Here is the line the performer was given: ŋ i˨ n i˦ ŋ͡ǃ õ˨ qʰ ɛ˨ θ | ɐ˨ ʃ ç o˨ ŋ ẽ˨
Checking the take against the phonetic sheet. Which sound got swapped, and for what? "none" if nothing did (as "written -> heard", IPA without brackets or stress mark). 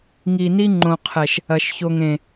θ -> ʃ